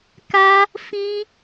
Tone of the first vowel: high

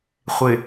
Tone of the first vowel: low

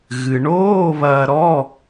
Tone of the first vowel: low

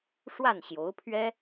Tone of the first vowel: falling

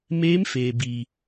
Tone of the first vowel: rising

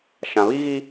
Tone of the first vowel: low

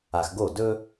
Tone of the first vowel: low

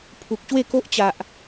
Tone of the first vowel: low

